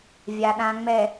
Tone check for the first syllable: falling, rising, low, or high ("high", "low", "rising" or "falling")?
low